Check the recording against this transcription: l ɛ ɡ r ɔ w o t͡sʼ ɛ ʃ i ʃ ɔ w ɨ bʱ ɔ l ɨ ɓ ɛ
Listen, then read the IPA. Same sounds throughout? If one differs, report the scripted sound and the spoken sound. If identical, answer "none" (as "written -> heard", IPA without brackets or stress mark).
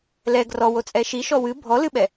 none